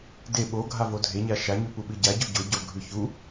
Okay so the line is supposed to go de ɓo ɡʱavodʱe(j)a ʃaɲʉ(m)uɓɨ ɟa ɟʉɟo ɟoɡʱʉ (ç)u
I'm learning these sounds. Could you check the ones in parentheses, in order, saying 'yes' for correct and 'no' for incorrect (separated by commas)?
no, no, yes